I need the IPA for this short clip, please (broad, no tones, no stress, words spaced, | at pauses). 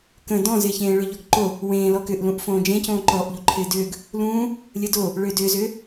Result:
kə̃ dɔ̃zɪːçẽː ɭʏ ʎɔɡǃo | wẽːlɔ kʏʔlũʔ fõːd͡ʒẽcõː ǃɔʔʎu ǃʰɪːdʏːɡ | lũː | lʲədo | ɭʏːdʏːzʏː